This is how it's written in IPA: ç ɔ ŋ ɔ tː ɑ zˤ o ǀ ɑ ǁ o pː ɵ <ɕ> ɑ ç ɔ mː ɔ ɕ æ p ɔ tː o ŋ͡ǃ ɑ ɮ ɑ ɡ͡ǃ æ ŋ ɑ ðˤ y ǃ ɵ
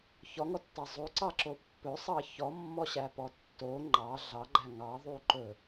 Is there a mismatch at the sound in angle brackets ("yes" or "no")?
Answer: yes